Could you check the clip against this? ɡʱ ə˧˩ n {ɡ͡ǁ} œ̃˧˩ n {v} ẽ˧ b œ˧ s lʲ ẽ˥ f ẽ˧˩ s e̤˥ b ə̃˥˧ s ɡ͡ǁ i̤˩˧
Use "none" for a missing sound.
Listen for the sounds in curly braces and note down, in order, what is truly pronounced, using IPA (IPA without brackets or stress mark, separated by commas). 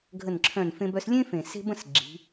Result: ǁʰ, f